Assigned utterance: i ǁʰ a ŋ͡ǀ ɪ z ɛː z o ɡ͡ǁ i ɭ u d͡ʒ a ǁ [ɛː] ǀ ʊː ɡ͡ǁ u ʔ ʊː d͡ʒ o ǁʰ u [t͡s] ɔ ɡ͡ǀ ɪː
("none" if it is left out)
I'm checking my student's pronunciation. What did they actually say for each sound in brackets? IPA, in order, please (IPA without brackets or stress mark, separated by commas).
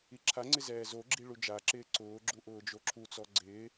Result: ɪː, t͡s